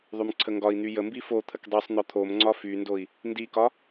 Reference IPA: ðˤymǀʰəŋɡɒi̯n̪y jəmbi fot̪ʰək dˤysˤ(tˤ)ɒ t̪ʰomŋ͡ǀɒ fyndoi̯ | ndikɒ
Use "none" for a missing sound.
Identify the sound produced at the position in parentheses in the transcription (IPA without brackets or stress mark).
n̪